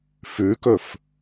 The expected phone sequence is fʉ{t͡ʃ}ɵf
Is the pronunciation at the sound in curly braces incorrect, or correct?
incorrect